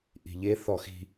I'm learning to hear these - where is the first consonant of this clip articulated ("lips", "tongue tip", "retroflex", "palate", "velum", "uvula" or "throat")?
throat